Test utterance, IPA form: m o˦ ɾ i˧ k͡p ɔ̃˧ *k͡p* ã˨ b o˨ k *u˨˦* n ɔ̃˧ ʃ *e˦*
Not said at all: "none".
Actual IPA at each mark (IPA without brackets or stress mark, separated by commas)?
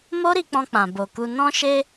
k͡p, u˧, e˧